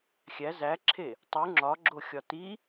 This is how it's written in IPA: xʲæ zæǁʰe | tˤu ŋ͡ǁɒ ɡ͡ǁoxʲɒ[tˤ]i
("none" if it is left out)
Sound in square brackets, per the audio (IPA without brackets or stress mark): t